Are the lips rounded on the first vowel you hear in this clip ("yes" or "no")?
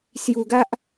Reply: yes